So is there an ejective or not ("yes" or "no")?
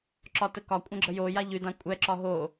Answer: yes